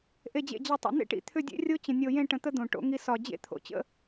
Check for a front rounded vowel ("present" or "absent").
present